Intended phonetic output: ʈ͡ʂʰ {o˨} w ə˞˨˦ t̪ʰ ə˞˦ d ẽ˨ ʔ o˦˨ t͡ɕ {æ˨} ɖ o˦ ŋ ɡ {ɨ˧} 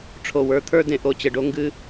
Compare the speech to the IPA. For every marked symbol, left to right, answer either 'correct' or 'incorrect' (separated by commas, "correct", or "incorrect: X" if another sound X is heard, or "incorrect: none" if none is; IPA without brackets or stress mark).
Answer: correct, incorrect: ə˨, correct